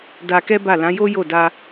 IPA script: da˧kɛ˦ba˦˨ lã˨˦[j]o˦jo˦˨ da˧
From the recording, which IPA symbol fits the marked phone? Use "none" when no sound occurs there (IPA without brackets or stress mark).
j